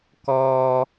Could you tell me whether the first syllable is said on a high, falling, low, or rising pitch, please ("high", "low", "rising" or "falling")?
high